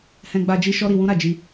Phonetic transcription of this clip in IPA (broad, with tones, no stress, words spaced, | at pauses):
hɛ̃˧ɡ͡ba˧ d͡ʒi˦ʃɔ˦ɾi˧ wũ˦ ɾa˦˨d͡ʒi˧